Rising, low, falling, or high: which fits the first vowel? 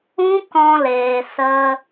high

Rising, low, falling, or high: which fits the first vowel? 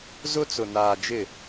high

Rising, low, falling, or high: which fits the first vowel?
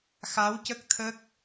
rising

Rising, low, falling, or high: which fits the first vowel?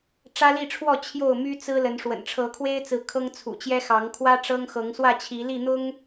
high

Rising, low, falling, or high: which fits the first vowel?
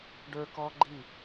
high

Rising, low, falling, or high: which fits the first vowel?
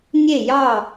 falling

